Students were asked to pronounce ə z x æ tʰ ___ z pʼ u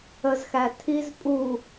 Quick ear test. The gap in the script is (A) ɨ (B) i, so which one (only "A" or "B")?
B